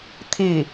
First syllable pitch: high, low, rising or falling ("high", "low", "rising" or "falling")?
falling